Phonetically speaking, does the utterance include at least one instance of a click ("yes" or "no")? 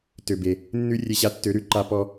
yes